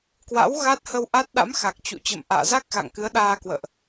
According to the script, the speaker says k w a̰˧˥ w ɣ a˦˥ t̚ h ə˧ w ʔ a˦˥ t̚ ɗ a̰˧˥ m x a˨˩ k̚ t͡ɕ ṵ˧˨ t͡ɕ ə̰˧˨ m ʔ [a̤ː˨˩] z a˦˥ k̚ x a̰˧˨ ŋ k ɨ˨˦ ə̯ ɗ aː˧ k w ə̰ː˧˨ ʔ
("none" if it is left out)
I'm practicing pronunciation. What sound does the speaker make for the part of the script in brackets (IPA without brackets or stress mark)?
a̰ː˧˨